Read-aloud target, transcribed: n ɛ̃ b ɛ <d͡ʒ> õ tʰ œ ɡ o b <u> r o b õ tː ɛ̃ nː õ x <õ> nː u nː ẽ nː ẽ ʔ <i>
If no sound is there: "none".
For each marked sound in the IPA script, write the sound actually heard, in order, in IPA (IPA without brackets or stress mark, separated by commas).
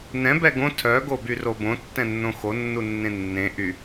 ɡ, y, o, y